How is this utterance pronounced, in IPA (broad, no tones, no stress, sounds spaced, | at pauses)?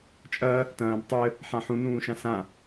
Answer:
t͡ʃʼ ɐ | t ɐ̃ː b tˤ ɘ | ħ ã ħ ũ n ũː ʃ ã s ã